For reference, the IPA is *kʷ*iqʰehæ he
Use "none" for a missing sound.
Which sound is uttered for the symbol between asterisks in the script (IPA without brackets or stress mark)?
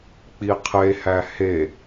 k͡p